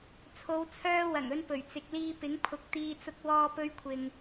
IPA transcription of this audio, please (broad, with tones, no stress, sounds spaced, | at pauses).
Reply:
t͡sʰ o˨˧ w t͡sʰ œː˧ w ɐ˨˩ ŋ ɵ˧ n p ɵ˨˩ ɥ t͡s ɪ˨ k̚ l iː˧ p ɪ˨˥ ŋ pʰ ʊ˨˥ k̚ t̪ iː˧ t͡s ʊ˧ k̚ w ɔː˧ p ɵ˧ ɥ kʷʰ ɪ˨ ŋ